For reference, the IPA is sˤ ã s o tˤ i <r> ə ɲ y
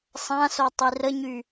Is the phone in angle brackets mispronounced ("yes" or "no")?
no